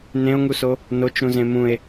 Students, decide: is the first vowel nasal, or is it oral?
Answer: nasal